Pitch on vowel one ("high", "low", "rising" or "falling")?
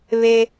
high